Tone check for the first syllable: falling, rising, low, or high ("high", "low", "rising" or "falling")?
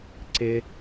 high